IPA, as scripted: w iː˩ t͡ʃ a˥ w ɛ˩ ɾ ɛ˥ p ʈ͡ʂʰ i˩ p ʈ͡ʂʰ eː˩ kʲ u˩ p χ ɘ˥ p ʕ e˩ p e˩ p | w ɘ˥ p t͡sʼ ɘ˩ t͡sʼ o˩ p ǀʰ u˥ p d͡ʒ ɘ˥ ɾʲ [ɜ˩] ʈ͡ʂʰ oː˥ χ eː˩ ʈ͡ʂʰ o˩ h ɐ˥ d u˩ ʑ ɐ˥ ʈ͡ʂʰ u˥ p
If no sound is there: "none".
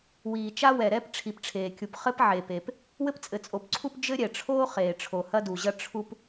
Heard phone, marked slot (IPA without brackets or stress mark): ɛ˩